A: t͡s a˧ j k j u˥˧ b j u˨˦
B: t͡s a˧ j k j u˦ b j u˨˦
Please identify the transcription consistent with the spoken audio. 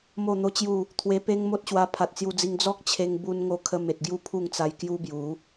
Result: B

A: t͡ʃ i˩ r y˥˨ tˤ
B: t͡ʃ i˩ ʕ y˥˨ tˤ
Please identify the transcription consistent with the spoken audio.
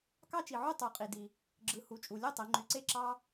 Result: B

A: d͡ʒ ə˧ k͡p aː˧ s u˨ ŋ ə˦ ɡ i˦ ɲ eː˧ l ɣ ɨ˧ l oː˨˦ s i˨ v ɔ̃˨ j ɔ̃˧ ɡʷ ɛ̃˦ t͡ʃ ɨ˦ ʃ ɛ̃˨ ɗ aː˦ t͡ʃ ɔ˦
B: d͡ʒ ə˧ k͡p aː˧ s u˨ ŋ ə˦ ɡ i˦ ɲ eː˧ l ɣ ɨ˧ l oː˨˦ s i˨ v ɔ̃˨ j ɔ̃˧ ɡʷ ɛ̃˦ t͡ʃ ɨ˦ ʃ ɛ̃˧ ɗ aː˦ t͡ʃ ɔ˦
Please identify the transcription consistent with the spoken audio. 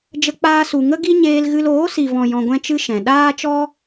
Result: A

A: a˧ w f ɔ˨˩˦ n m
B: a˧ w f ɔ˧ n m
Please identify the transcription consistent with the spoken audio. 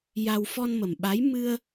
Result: B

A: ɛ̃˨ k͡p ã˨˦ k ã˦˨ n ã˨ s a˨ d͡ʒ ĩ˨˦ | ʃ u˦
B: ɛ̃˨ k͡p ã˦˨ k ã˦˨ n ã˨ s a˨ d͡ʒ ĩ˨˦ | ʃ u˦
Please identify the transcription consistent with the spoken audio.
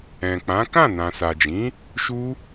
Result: A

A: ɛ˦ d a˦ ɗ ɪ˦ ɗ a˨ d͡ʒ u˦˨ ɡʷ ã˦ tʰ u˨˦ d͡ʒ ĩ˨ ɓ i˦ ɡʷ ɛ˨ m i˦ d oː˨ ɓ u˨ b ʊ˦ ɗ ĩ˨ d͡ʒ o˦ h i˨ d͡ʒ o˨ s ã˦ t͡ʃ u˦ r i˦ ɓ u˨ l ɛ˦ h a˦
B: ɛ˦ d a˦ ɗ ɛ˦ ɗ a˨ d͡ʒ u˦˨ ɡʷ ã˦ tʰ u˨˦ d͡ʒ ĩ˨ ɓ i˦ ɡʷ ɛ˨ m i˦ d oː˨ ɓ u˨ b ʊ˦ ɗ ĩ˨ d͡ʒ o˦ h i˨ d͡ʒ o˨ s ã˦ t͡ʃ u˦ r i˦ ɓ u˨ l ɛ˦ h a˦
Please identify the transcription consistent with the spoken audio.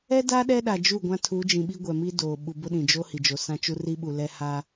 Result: B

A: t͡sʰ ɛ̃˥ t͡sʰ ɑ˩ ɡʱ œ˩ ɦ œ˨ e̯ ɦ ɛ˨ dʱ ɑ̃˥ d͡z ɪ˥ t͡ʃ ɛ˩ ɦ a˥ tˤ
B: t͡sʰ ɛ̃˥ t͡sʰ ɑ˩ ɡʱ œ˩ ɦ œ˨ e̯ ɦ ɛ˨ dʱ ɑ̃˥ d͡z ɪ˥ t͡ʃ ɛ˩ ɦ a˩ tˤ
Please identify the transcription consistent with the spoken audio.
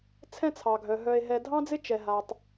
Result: B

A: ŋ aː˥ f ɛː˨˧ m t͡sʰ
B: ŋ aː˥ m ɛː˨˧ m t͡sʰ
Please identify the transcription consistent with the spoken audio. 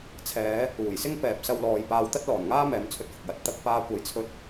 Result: B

